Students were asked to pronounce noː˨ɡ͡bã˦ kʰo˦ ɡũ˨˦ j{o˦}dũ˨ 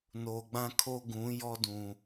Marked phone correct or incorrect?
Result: incorrect: ɔ˦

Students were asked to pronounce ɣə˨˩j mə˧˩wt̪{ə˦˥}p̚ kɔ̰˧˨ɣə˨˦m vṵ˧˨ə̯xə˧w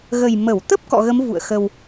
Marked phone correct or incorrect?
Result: correct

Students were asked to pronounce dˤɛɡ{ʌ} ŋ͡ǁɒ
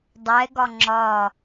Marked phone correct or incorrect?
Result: incorrect: ɒ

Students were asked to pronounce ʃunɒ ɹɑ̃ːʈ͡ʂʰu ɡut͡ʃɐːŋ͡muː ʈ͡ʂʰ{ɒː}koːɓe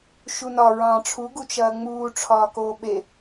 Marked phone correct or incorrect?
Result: correct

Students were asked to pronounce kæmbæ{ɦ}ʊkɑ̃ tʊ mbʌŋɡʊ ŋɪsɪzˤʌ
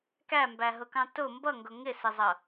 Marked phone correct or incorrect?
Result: correct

